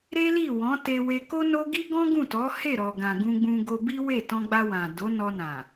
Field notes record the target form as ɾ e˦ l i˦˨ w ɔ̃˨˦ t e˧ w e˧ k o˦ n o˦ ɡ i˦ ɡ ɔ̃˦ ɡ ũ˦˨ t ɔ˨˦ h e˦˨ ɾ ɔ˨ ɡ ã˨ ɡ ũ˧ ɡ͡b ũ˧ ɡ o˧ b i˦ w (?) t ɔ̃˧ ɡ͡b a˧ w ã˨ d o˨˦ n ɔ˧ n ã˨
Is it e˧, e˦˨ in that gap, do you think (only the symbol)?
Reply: e˦˨